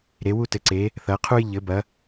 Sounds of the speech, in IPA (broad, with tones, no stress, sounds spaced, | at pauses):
ɾ e˨˦ w u˦ t ɘ˨˦ ǀ e˨˦ | θ ɐ˨˦ qʰ u˦ j ʎ ɘ˨˦ b ɐ˨˦